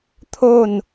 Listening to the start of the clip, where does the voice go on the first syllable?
falling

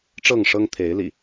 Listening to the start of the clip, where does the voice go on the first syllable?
falling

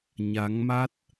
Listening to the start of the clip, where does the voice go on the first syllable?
rising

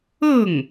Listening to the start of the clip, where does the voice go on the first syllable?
falling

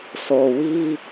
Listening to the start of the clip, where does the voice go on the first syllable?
low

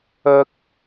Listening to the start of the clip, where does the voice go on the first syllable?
high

